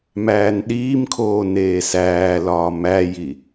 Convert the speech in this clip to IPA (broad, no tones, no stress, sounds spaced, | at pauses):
m æː n ɗ iː m kʰ oː n eː s æː l ɒː m æ j i